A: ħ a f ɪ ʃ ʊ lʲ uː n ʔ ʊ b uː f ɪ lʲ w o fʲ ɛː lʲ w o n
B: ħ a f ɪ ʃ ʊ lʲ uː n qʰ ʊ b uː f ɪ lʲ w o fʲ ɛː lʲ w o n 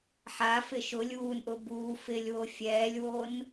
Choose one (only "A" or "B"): A